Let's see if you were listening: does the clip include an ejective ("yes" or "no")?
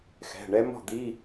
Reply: no